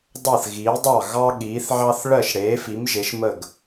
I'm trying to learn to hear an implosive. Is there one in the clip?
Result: yes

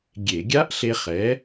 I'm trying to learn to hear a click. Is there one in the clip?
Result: no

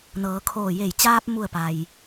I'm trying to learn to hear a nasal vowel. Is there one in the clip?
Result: no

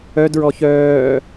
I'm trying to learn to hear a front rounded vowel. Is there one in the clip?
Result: yes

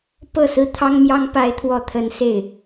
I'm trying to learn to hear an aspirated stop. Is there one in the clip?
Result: yes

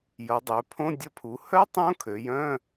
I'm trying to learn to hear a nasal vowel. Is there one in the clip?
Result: yes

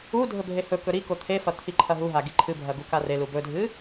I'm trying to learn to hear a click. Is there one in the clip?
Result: yes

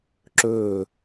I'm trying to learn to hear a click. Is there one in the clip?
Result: yes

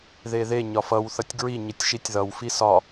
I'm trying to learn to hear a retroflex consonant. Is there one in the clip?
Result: no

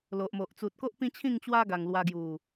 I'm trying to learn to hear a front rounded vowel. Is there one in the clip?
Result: no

